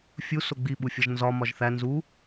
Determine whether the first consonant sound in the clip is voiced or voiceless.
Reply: voiceless